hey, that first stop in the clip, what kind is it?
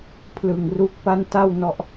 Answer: aspirated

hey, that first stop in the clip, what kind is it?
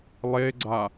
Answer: click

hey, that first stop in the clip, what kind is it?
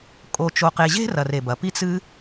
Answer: ejective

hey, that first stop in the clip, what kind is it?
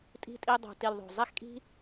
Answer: ejective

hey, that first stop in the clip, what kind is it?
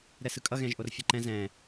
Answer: ejective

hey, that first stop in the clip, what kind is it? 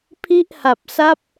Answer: aspirated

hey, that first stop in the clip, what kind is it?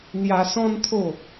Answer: aspirated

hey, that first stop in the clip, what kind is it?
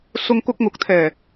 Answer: plain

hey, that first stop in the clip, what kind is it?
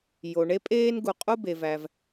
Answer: ejective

